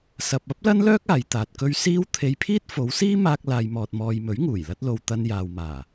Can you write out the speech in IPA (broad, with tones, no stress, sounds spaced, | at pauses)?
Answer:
s ɐ˨ p̚ ɐ˥ p̚ l ɐ˥ n l œː˥ k̚ aː˨˧ j t̪ aː˨ t̚ k ɵ˥ ɥ s iː˥ w t̪ʰ e˧ j pʰ iː˥ t̚ f o˨˧ w s iː˥ m aː˧ k̚ l aː˨ j m ɔː˨ t̚ m ɔː˨ j m ɵ˨˥ ɥ ŋ uː˨˩ j l ɐ˥ t̚ l o˧ w t̪ ɐ˧ n j aː˨ w m aː˨˩